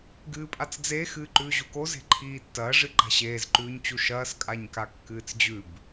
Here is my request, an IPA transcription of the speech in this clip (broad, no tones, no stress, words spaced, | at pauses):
ɡɨːpʼat͡sd͡ze xɨːǃʉːʑuko ze̤ǃʰiːtːɐː ʐɨǃa̤ɕeːz ǃʉːɲt͡ɕuʃɐːs kʼaɲkakːɨːt͡sd͡ʑʉb